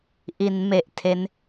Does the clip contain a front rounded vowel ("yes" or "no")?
no